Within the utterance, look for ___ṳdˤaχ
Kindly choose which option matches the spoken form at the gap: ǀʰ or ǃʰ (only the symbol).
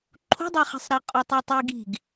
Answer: ǃʰ